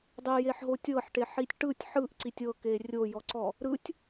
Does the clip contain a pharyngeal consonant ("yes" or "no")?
yes